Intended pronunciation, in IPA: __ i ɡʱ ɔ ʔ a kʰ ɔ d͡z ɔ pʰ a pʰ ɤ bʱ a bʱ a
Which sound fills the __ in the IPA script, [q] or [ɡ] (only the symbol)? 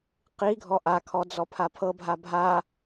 q